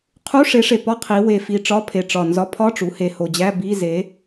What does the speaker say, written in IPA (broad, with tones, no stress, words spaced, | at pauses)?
qʰu˧˥˧ʂe˨˥ʂe˨˩pɒ˧˥˧ qʰi˩˧we˨˩fi˨˩ ʈ͡ʂɒ˧˥˧pʰe˨˩ ʈ͡ʂɒ˨˩nzɒ˨˥pʰɒ˧˥˧ʈ͡ʂu˩˧ he˨˩ho˨˩d͡ʑæ˧˥˧ bi˧˥˧ze˨˥